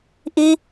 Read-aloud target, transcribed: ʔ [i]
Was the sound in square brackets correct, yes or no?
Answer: yes